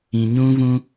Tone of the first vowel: low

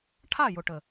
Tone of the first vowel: falling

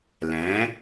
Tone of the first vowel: rising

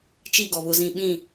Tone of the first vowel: falling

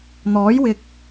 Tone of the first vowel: rising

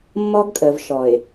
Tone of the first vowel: high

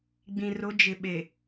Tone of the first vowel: low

